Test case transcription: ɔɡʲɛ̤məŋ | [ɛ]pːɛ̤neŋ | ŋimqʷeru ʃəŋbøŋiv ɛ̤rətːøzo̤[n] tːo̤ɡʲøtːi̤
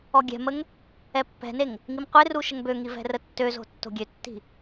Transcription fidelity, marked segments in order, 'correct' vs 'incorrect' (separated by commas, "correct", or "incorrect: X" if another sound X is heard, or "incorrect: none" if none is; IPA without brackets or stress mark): correct, incorrect: none